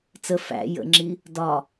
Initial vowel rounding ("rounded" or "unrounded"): unrounded